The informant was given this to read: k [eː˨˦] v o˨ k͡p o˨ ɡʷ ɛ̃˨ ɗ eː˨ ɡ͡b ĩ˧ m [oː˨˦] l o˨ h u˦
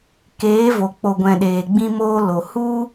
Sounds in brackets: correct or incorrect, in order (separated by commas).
correct, incorrect